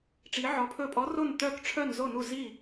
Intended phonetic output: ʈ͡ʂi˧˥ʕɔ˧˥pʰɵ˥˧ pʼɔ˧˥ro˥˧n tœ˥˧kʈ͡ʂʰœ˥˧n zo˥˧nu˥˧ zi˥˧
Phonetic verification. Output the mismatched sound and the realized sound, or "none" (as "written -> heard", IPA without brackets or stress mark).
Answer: none